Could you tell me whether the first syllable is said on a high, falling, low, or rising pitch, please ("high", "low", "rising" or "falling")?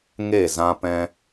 falling